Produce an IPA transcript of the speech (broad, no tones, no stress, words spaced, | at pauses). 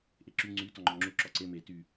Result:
ʔeǁy ŋ͡ǀy tɔŋ͡ǃɔŋ͡ǁu ǁɔǀe me ty